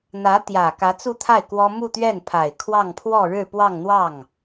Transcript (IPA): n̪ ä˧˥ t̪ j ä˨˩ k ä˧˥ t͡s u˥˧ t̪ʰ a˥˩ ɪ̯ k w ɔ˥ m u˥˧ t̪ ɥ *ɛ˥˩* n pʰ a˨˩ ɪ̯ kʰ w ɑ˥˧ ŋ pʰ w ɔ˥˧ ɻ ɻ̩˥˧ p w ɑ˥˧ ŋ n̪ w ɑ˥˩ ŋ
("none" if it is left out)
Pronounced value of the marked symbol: ɛ˥˩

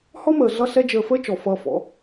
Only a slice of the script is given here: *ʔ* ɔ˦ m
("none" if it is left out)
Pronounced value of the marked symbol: h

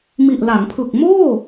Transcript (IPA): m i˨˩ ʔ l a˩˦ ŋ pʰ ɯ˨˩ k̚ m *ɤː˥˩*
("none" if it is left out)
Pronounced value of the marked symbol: oː˥˩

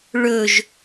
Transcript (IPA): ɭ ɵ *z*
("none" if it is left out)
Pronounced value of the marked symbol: ʒ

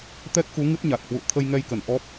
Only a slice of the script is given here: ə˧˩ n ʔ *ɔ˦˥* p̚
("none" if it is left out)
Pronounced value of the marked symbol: ɔ˦˥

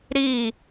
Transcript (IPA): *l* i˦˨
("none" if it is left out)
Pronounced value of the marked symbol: ɾ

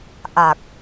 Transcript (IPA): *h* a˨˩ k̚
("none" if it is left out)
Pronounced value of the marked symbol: ʔ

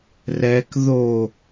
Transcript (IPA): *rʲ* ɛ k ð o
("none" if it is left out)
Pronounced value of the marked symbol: r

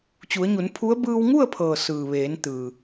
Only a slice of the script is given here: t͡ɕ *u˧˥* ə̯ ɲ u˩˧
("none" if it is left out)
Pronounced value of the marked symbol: u˩˧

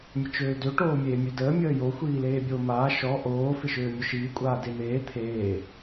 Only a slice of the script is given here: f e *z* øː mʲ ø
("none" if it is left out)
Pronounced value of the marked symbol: ʃ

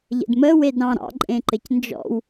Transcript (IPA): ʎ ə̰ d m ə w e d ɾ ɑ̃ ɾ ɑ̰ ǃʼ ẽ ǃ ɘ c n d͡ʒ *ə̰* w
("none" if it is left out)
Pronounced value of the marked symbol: ɔ̰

